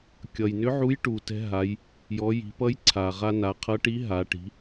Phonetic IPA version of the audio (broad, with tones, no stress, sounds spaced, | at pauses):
kʲ ʌ˩ j n ʏ˧˥ ʕ u˧˥ j ʈ u˩ t ɛ̤˧ ɦ a˩˧ j | j ɔ˩˧ j i̤˩˧ p ʌ˧˥ j ǀʰ a˩ ʁ a˧ n a˩˧ qʰ ʌ˧˥ ʈ i˧˥ ɦ a˩˧ ʈ i̤˩˧